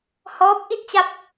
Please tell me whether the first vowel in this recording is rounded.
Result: yes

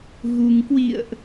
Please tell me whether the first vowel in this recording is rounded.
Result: yes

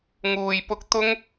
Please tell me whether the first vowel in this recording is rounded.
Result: yes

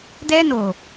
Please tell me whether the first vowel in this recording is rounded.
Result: no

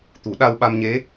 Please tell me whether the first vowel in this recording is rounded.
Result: yes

